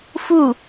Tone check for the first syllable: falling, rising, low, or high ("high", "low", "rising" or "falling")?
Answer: falling